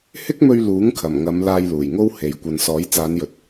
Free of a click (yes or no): yes